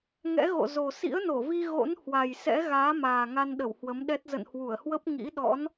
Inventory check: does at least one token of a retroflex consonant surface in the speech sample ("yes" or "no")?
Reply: no